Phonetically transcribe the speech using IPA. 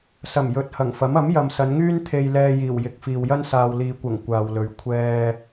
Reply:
s ɐ˨˩ m j ɵ˨ t̚ h ɐ˨˩ ŋ f ɐ˨˥ m ɐ˨˥ m j ɐ˨ m s ɐ˨˧ n ŋ yː˥ n t̪ʰ e˧ j l ɛː˧ j iː˨˩ w j ɪ˨˥ k̚ f iː˨ w j ɐ˥ n s aː˨ w l iː˨ kʷ ɐ˨˩ ŋ kʷ aː˨ w l ɵ˨ ɥ kʷʰ ɛː˧

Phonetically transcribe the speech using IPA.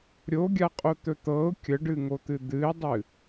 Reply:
ɾʲ o ɡʲ a qʼ o t̪ ɵ t̪ ɤ ʊ̯ kʲ ə ɖ ɨ ŋ o t̪ ɨ d̪ ɨ ɪ̯ dˤ ɨ

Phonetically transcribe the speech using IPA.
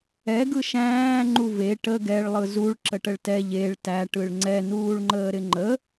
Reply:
ɛ ɡ ɯ ʃ æ̃ː ŋ͡ǃ u v e ʈ ə ɡ ɛ ɭ lˠ ɯ z u ɭ ǁ ə ʈ ə ɭ t ɛ ʎ e ɭ t æ ʈ ɯ ɭ ŋ͡ǀ ɛ n uː ɭ ŋ͡ǃ əː ɾ ɪ ŋ͡ǃ ə

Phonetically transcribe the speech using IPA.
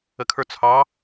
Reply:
ə kʰ ə˞ t͡sʰ ɑ

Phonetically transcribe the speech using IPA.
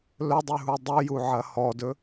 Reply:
l ɵ dˤ ʉ ɦ u dˤ ʉ j u ʕ ɐ h ɔ d ɵ

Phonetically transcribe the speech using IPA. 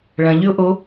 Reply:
ɭ ɐ̃ ʎ y ʊ̯ ʔ o

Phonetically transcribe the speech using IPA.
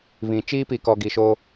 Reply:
β ĩ˨ t͡ʃ iː˦ p i˨ k ɔ˨ ɡ i˨ ʃ o˦

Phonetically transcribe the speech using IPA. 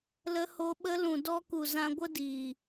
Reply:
l ə˧ h o˧ ɓ ə˧ l ũ˨ d ɔ˧ k u˨ z ã˧ ɡʷ ə˦ d iː˨

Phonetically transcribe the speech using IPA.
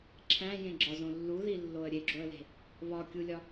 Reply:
ǁʰ æ̃ j ẽ ɡ͡ǁ ɒ z õ lː u ð i lː o ə̯ ɾʲ e ɡ͡ǁ o ə̯ l e̤ | β ɒ kʲ u lʲ ɒ

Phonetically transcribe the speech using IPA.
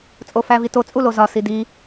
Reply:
t͡sʼ o f æ v i t o t͡sʼ u l o z ɒ s i d i

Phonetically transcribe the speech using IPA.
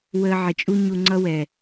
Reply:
w əː˧ ʕ ɪ˨ t͡ʃʼ u˦ ɲ u˧ ŋ͡ǀ ʌ˦ w ɛ˨

